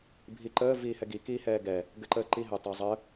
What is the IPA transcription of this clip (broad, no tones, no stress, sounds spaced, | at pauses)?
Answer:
bʱ i ǃ əː v iː h ɛ ɡ i k iː h ɛː ɡ ɛ | ɡ ɘ ǃ əː ǃ i ɦ ɘ tˤ ɘ zˤ ə